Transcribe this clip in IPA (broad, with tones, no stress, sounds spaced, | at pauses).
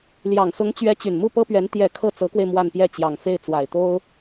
l j ɑ˨˩ ŋ s ʊ˧˥ ŋ t͡ɕ ɥ ɛ˧˥ t͡ɕ y˨˩ n m u˥˩ p ɤ˥ p ɥ ɛ˧˥ n t̪ j ɛ˨˩ kʰ ɤ˥˩ t͡s ɤ˧˥ k w e˧ ɪ̯ m w a˥˧ n p j ɛ˥˩ t͡ɕ j ɑ˨˩ ŋ f e˥˩ ɪ̯ t͡s w a˨˩ ɪ̯ t̪ o˥ ʊ̯